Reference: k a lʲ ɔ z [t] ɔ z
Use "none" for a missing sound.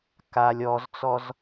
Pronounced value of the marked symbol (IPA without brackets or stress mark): t͡s